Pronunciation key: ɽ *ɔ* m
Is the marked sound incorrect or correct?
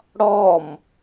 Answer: correct